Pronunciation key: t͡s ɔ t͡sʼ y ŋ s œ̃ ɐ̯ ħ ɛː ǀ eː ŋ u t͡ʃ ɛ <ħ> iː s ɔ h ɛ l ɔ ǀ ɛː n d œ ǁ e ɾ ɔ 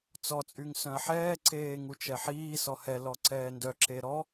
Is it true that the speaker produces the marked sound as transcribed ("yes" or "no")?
yes